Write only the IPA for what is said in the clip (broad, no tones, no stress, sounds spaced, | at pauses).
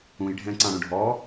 ũ j ɖʱ ɛ̃ ǀ ɑ̃ ɽ ũ ɖʱ ɔ